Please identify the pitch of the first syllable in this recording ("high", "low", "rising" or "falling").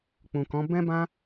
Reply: low